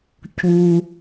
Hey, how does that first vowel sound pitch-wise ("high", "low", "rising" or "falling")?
high